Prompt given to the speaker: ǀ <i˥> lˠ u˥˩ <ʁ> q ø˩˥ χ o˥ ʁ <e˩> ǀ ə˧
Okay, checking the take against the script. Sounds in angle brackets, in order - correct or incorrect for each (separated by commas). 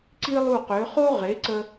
correct, incorrect, incorrect